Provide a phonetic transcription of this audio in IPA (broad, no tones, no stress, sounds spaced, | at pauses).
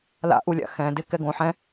l a̰ ʔ u lʲ a̰ x ɛ̃ d ɪ k ɛ ɡ õ ħ ɛ̃